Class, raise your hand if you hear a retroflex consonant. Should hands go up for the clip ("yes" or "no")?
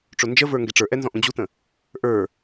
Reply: yes